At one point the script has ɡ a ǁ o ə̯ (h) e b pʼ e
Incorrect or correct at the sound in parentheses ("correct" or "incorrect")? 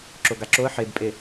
incorrect